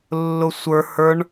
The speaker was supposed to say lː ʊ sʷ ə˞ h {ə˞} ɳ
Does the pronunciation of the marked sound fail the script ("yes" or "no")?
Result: no